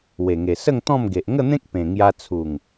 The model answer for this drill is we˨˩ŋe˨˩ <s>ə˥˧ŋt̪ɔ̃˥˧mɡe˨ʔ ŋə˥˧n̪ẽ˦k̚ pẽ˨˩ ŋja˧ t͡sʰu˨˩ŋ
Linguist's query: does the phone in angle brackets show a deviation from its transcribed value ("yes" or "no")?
no